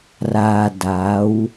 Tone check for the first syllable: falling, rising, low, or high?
low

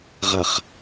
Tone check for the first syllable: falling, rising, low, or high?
low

